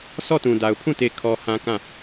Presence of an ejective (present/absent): absent